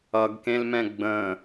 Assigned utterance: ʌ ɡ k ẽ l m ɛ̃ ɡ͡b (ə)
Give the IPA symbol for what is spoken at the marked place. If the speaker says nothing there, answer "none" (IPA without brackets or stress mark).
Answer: ə̃